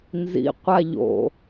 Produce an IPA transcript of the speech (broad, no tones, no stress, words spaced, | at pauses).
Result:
nzḭqʷa ʎo̰